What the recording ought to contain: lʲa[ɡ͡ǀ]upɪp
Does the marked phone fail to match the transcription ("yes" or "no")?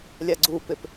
no